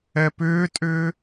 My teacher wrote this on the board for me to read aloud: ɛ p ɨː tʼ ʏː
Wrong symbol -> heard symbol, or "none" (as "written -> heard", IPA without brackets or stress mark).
ɨː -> ʏː